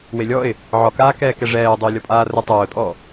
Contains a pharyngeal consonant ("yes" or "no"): yes